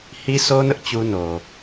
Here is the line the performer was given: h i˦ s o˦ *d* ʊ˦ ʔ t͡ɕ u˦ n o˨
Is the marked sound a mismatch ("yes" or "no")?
yes